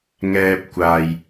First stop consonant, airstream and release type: plain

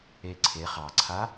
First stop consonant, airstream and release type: click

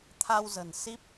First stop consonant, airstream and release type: aspirated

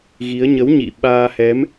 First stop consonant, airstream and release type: implosive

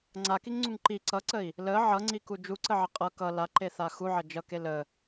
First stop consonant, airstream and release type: click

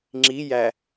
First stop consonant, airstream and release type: click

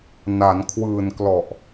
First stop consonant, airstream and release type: aspirated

